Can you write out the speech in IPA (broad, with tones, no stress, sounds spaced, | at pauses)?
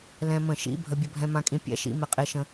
l ɛ̃˧ m ə̃˧˩˧ ʃ ḭ˧˥˧ bʱ ə˧ bʲ ə˧ bʱ ɛ̃˧ m ã˧ kʼ ĩ˧ pʲ ɛ̰˧˥˧ ʃ ḭ˧˥˧ m ɛ˧ qʼ e˧ ʃ ə̃˧